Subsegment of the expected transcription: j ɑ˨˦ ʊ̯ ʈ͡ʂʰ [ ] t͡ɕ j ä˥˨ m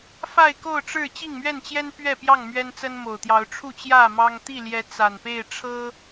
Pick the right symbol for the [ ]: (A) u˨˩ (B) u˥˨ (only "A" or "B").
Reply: B